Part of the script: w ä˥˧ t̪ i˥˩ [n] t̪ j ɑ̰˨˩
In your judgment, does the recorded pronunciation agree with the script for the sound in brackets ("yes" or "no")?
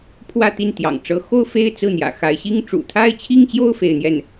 yes